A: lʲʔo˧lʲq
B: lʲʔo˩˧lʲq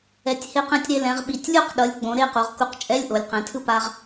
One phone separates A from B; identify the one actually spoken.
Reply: B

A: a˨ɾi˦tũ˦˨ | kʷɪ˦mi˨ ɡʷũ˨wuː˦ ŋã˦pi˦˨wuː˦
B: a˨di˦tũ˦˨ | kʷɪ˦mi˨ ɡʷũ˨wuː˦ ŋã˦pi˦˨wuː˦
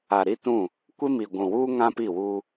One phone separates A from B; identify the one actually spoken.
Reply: A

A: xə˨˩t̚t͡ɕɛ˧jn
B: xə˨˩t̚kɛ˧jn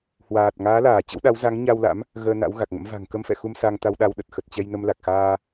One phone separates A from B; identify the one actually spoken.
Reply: A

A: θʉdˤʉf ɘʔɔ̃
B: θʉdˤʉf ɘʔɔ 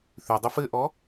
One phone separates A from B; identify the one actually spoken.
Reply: B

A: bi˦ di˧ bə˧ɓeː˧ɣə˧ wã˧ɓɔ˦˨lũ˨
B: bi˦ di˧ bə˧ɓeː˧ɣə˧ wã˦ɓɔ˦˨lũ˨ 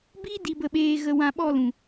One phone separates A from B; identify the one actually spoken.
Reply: A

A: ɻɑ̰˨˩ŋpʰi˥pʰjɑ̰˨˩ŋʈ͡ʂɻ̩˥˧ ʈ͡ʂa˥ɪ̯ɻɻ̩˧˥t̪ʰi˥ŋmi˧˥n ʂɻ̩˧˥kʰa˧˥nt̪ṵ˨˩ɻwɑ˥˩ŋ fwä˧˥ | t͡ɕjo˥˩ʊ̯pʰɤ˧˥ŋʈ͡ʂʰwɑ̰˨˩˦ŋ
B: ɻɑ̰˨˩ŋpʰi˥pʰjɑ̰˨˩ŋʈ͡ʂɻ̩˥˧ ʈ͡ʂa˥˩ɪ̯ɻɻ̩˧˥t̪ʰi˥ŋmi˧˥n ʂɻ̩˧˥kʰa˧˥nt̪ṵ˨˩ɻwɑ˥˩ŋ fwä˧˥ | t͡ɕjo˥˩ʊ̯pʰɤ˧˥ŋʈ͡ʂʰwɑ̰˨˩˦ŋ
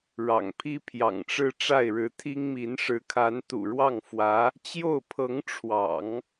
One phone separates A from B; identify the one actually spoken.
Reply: B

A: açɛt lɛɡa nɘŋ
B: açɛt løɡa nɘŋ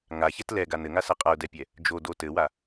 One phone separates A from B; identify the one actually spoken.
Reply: A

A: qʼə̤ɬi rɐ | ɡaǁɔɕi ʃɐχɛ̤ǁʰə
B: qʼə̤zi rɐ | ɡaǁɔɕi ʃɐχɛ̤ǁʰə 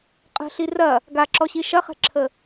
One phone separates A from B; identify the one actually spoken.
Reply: A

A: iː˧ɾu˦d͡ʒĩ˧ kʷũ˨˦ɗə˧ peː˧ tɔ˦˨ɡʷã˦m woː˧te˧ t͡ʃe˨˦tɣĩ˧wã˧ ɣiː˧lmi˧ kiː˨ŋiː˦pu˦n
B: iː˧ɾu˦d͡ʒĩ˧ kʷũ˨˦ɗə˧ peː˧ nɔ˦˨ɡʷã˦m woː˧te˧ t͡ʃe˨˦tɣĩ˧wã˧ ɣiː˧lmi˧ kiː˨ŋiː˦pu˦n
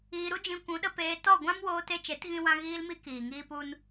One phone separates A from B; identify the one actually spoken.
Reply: A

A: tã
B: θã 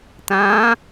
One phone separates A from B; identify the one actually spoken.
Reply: A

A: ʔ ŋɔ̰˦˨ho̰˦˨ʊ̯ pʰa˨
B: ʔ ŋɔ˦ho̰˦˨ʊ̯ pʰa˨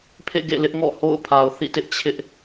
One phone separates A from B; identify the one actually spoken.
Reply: A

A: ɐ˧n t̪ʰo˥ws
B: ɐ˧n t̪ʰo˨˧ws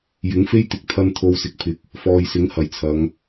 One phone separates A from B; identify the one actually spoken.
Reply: B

